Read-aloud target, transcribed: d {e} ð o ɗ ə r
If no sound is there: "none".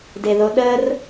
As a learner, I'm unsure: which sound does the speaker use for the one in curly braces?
e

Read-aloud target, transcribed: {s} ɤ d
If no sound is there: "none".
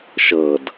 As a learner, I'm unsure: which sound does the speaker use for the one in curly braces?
ʃ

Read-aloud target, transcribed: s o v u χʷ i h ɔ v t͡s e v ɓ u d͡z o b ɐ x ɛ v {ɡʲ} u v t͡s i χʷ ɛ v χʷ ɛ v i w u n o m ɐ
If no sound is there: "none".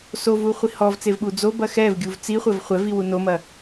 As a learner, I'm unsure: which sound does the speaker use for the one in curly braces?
ɡʲ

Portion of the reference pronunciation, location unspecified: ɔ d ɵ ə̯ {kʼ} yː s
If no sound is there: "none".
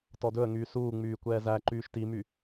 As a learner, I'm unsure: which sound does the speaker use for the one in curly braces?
ŋ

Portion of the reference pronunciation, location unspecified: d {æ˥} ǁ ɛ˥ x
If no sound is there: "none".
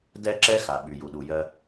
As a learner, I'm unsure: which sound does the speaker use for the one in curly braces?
ɛ˥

